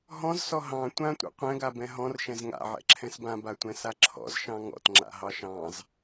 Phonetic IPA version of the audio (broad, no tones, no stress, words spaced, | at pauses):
ɦɔ̃zsɔ ɦɑ̃ tʷãtʷɛ̰ qʷɛ̃ɡabɛ̃ ɦɔ̃rʃɛ̃z ŋa̰ʕɛ̰ǁʰɛ̃s bãbatʷɛ̃sa ǁʰɔ̰zʃɑ̃ ŋɔ̰tŋ͡ǁa̰ɦɑ ʃɑ̃z